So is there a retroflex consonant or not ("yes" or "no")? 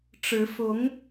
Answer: yes